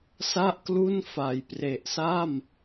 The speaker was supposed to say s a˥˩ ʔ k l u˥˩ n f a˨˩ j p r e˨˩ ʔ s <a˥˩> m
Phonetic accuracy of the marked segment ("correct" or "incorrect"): correct